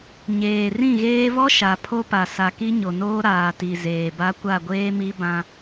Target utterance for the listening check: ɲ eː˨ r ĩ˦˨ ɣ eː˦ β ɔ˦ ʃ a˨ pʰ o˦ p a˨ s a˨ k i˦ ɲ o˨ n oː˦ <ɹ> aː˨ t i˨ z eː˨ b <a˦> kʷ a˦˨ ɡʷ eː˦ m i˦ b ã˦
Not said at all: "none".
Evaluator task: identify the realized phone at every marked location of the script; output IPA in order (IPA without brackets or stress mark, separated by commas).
ɾ, a˦